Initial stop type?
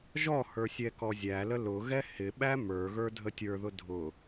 plain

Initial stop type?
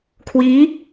aspirated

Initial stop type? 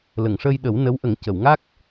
implosive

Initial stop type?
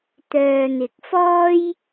plain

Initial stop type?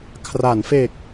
aspirated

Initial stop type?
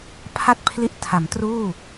aspirated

